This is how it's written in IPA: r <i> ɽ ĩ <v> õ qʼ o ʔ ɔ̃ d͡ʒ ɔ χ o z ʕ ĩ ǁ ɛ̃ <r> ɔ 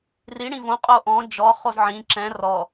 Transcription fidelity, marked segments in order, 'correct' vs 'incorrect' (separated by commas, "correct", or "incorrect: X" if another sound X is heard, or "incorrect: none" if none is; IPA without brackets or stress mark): correct, correct, correct